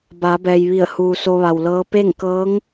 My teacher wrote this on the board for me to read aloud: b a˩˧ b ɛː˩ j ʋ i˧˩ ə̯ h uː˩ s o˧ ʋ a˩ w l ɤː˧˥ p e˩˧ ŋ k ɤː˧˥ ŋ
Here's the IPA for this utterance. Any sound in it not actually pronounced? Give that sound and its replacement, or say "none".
e˩˧ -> e˥˨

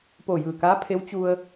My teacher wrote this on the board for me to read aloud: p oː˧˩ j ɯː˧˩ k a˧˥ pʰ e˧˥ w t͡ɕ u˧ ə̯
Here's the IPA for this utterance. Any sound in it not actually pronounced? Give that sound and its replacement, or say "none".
a˧˥ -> aː˧˥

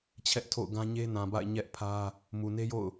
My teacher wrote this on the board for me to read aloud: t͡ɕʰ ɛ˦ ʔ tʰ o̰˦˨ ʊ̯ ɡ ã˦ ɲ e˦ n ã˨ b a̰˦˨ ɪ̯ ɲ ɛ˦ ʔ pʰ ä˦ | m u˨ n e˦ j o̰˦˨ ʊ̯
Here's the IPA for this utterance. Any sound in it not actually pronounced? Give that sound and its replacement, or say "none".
none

